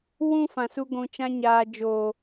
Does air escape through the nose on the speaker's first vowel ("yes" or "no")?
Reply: yes